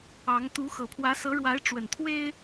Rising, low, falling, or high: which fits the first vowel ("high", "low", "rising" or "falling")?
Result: rising